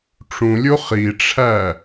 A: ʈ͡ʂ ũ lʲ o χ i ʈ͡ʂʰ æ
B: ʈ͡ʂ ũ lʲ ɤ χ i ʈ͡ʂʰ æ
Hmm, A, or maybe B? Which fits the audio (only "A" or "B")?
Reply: A